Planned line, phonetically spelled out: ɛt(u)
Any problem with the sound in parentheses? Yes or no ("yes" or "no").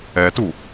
no